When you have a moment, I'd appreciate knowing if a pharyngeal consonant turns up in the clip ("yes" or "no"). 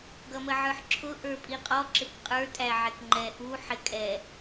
yes